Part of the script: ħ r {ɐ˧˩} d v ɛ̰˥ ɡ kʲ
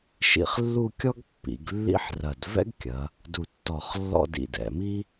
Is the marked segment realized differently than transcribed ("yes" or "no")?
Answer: no